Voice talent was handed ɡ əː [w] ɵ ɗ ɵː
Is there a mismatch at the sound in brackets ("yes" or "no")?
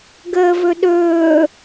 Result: yes